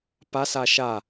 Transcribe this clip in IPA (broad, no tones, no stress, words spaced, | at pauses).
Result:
pas aʃa